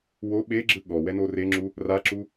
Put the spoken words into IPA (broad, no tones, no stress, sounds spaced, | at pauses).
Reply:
w o ɓ e ɡ͡ǁ ɯ ɠ ɔ w ɛ n o r e ŋ͡ǁ u | r a ǁ u